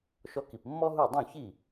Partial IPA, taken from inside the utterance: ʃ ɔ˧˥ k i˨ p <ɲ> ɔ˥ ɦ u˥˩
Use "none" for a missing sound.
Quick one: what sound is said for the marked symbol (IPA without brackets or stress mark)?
mː